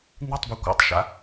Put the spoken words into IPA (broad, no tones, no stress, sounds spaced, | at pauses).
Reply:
n̪ i tˤ b ɛ kʷ a̰ tˤ ʃ a̰